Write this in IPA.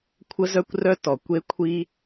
kʷʰ ə˥ z œ˥ kʷ r œ˥ t ɔ˩ kʷ e˥ kʷʰ i˥

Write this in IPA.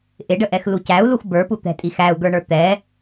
ʔ ɪ ɖ ə ʔ ɛ x l u c æ u̯ l u x b ə˞ p u t̪ ɛ̤ tʼ i x æ u̯ ɡ ə˞ ɳ ə˞ t̪ ɛ

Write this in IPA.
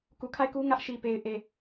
k u˨ kʰ a˦˨ ɪ̯ k u˦ ŋ ä˦ ʔ ʃ i˨ p e˨ ɪ̯ ʔ e˨

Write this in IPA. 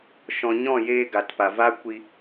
ʃ ɔ̃˨ ɲ ɔ̃˦˨ j eː˧ ɡ a˨ t p a˨ v a˦ kʷ i˦

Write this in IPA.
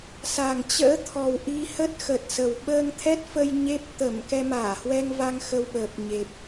s a˨˩ ŋ t͡ɕ ə̰ː˧˥ t̪ʰ ɔ˨˩ w ʔ i˧ h ə˦˥ t̚ x ə˨˩ t̚ s ə˨˩ w ɓ əː˧ ŋ t̪ʰ ɛ˦˥ t̚ f ə˧ j ɲ e˦˥ p̚ t̪ ə˧˩ m k ɛ˧ m aː˧˩ h w ɛ˧ ŋ v a˧ ŋ x ə˧ w ɓ əː˨˩ p̚ ɲ e˨˩ p̚

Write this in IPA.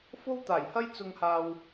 f o˥ w t̪ aː˨˩ j h ɐ˥ j t͡s ʊ˧ ŋ h aː˧ w

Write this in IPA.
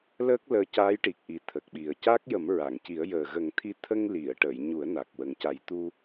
l əː˦˥ k̚ l əː˧ c a˧˥ j ʈ i˨˩ k̚ ʔ i˨˩ t̪ʰ ə˨˩ k̚ ɓ i˨˩ ə̯ c a˦˥ k̚ j ə˨˩˦ m ɹ a˨˩˨ ŋ c i˨˩˦ ə̯ j əː˨˩ ɣ ə˨˩˦ ŋ t̪ʰ i˧ t̪ʰ ə˧ ŋ l i˨˩˨ ə̯ ʈ ə˨˩˨ j ɲ u˨˩˦ ə̯ n a˨˩ k̚ w ə˨˩ ŋ c a˨˩˦ j t̪ u˧

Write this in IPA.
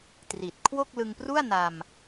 t r i˨˩ t̚ kʰ w o˥˩ k̚ l ɯ˧ ŋ p r u˥˩ a̯ n a˧ m

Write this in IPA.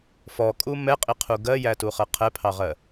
f ɔ kʼ u m ɛ qʼ i qʰ u ɡ ɜ j æ t u χ ɜ qʰ ɛ pʰ ɑ ʁ ɜ

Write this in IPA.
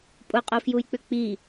pʼ ʊ qʼ o f j u j k͡p ʏ k͡p i

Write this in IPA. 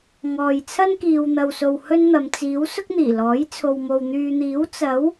ŋ ɔː˨ j t͡sʰ ɐ˥ n k iː˨ w n̪ ɐ˨ w s o˨ w h ɵ˥ n n̪ ɐ˨˧ m t͡s iː˨˥ w s ʊ˥ k̚ n̪ iː˨˩ l ɔː˨˥ j t͡sʰ o˨ w m o˨ w n̪ yː˨ n̪ iː˨˥ w t͡s ɐ˨˥ w

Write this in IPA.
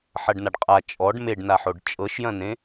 ħ ɐ ɖ n a ɖ qʼ a t͡ʃʼ ɔ ɖ m e ɖ n a ħ o ɖ t͡ʃʼ ɤ ʃ j ɐ̃ n ẽ

